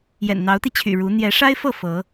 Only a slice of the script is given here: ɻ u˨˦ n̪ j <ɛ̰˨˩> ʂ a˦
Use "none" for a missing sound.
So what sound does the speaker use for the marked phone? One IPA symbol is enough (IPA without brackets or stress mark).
ɛ˨˦